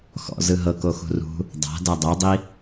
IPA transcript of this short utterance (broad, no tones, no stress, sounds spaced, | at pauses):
x ɔ̰ z ɯ ɦ ɤ k o x ṳ r ṳ | dˤ a̤ d a dˤ ɛ dˤ i